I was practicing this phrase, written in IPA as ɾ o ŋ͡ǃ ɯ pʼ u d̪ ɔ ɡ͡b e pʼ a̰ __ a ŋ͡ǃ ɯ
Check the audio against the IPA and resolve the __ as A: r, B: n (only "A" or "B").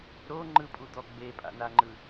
B